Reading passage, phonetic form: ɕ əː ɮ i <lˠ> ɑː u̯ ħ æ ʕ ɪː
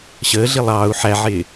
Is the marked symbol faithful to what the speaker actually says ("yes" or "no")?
yes